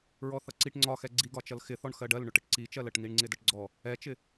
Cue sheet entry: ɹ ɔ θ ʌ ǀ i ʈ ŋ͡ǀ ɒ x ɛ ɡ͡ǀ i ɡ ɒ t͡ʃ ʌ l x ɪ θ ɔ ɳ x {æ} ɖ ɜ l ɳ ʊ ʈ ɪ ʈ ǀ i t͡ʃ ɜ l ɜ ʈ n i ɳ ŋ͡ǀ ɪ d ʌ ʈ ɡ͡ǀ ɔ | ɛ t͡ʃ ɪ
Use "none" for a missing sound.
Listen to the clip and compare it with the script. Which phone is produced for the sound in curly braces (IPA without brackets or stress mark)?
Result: ɜ